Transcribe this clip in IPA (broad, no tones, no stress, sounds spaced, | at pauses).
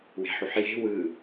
w e̤ ħ u ħ j e̤ w ɯ